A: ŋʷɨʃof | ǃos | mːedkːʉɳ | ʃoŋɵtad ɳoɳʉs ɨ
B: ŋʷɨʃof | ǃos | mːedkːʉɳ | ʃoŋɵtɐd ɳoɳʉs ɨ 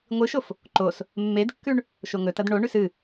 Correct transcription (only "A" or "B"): B